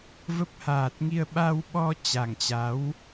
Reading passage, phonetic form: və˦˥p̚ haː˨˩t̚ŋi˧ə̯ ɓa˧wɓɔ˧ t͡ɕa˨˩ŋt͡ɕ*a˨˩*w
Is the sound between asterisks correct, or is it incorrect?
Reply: incorrect